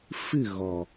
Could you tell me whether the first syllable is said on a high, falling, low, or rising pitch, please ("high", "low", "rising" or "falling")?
falling